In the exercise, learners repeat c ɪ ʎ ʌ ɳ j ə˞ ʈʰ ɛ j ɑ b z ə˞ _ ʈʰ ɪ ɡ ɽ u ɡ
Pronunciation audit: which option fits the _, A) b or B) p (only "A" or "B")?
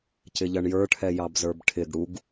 A